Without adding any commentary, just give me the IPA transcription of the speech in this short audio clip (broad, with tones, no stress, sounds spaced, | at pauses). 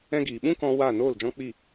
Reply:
ɛ̃˦ ɡ iː˨ ɓ ũ˦ k ɔ̃˧ w a˦˨ n oː˦˨ l d͡ʒ ɔ̃˦ k͡p i˦˨